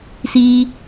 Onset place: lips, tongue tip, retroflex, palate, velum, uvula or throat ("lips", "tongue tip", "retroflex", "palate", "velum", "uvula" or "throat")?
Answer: tongue tip